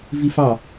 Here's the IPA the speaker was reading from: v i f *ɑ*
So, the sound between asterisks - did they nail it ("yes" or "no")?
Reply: yes